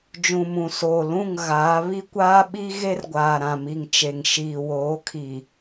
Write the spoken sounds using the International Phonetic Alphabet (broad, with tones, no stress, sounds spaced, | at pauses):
d͡ʒ ũ˨ m ũ˨ s oː˨ l ũ˦˨ ŋ ɣ aː˨˦ β i˦ kʷ aː˦ ɓ i˦ ɣ e˦ r ɡʷ aː˨ ɾ ã˨ m i˨ ŋ t͡ʃ e˨ ŋ ʃ iː˨ w oː˨˦ kʰ i˨